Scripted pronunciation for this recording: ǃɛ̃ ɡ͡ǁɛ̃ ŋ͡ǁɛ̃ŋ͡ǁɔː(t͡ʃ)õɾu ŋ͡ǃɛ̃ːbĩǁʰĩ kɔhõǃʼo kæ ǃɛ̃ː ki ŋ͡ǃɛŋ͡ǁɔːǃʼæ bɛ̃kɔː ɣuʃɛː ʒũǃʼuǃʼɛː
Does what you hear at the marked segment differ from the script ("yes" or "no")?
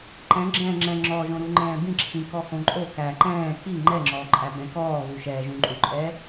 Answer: yes